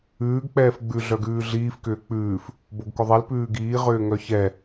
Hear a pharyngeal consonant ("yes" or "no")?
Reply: no